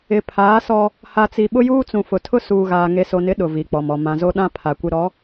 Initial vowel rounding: unrounded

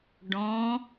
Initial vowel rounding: rounded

